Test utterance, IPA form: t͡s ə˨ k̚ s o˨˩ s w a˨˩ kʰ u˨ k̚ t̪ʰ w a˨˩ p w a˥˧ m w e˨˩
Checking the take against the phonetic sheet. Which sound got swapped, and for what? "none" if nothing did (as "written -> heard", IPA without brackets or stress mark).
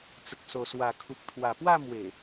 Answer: none